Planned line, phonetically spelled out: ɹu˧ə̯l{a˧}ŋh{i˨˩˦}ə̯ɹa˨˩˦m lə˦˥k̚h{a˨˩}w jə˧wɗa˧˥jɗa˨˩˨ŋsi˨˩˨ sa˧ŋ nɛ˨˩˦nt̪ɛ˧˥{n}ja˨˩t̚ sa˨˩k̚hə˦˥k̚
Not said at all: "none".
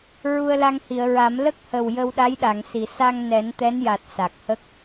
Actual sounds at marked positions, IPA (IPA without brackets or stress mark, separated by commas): a˧, i˨˩˨, ə˨˩, n